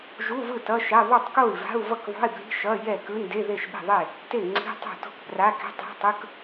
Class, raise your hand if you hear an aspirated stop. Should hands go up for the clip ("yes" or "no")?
no